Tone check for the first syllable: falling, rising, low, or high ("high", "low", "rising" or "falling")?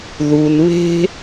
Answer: low